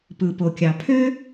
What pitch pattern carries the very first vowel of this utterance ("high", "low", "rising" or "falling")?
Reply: low